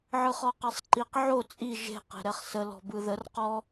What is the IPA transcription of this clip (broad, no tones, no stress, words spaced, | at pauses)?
ʕɯχɔqɛsˤǃiq ʕo t͡sʼi ʒe̤ qe̤ɾɛχsə lɔ̤bɯðər qɔ